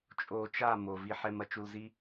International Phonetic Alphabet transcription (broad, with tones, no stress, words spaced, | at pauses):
t͡ʃʼo˧t͡ʃa˦˨ mo˨vi˧ħɛ˧m ɐ˦t͡ʃu˧lzi˦